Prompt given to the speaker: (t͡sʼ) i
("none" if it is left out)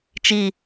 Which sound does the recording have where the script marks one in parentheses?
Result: t͡ʃ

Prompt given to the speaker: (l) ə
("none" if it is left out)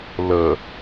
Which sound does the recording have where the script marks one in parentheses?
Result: l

